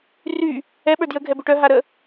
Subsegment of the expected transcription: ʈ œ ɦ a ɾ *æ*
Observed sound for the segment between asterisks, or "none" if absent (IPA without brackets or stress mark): ə